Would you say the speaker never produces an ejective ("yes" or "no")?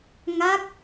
yes